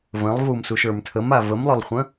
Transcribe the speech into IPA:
və̃lˠvumsuʃ ə˞mtʰəm avəmlˠølˠχʷə̃

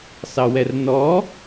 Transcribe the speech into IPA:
sɑwɛrnɔ

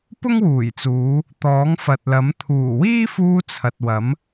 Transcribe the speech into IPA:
pʊ˥ŋwuː˨˩jt͡suː˨˧ | t̪ɔː˨˥ŋfɐ˨t̚lɐ˨˥m t̪ʰuː˨˩wiː˥fuː˧ t͡sʰɐ˨t̚wɐ˨˥m

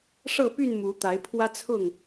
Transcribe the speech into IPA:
ʂɤ˥˨py˥˨n mu˨˦t̪a˨˦ɪ̯ pʰwä˦t͡sʰʊ˥˨ŋ

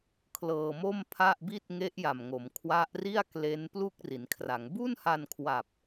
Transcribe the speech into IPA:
kʰlɤː˧mo˥˩mpʰa˥˩ʔbi˥˩t̚ ŋe˦˥ʔja˨˩mŋo˩˦m kʰwa˦˥ʔri˥˩a̯kle˦˥n plu˥˩k̚ri˩˦nkʰra˩˦ŋ bu˥˩nha˧nkʰwa˨˩p̚

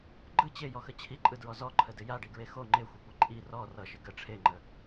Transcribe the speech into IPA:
ɡ͡ǃɯ t͡ɕejɔxə t͡ɕʰiǃʼɯdɹɔ zɔǃʰədɪ jaɖiɡɹe xo ŋ͡ǃexʷekʷi ǃʼi rɔ rʌʃɪ ɡə ʈ͡ʂʰeŋ͡ǃə

